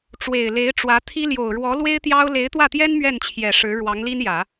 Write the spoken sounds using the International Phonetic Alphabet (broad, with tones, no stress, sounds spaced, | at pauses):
ʈ͡ʂ w e˨˩ ɪ̯ l e˧˥ ɪ̯ ʈ͡ʂ w ä˧˥ t̪ʰ i˥ l j o˨˩ ʊ̯ ɻ w ɔ˧˥ l w e˥ ɪ̯ t̪ j ɑ˥ ʊ̯ l e˧˥ ɪ̯ t̪ w ä˥˩ t̪ j ɛ˥ n m ɥ ɛ˥˩ n t͡ɕʰ j ɛ˨˩ ʂ ɻ̩˧˥ ɻ w ɑ˧˥ ŋ l i˥ n j ä˨˩˦